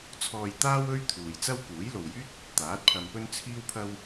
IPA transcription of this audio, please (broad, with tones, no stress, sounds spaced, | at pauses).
t͡sʰ ɔː˧ j t̪ aː˥ w ɵ˥ ɥ t̪ʰ uː˨ j t͡s ɐ˥ w k uː˨˥ j l o˨ w j yː˥ t̚ | t̪ aː˨˥ t̚ pʰ ɐ˧ m p ɵ˥ n t͡sʰ iː˥ w pʰ ɐ˥ w